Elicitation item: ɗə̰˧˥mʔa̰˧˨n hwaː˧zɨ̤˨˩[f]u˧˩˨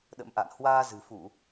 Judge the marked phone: correct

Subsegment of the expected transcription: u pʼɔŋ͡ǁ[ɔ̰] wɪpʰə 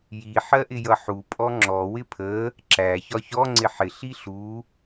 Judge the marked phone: incorrect: ɔ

